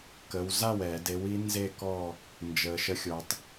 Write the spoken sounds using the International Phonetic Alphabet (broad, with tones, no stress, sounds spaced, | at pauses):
k ə˩˧ w z a˥˩ w ɛ˧˩˧ d e˨˥ w i˨˥ n z e˥˧ k ɔː˥˧ | n d͡ʒ əː˩ ʃ ə˨˥ xʲ ʊ˩˧ tˤ